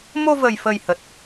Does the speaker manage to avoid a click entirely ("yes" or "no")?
yes